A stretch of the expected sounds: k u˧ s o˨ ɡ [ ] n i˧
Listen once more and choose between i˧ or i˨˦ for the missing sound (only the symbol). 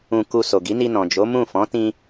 i˨˦